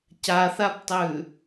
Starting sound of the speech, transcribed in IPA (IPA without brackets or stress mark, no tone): c